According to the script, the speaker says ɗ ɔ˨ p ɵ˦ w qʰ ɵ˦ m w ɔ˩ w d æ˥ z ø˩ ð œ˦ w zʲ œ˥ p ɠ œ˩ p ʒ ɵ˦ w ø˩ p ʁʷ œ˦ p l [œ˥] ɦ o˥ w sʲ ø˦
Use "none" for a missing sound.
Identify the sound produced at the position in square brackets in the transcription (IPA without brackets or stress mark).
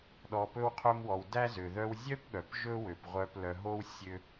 œ˨